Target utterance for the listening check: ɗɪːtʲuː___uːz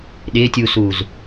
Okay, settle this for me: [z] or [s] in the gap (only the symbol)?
s